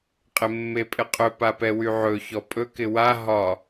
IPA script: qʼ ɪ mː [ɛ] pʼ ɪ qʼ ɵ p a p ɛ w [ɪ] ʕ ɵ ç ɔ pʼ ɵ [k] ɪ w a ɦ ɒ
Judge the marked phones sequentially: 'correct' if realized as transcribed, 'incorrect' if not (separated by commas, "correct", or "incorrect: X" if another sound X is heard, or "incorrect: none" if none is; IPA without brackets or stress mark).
incorrect: e, incorrect: y, correct